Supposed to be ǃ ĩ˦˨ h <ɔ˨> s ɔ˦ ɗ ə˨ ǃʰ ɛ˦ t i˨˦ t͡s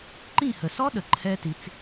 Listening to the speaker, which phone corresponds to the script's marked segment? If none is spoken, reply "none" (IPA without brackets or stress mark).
ə˨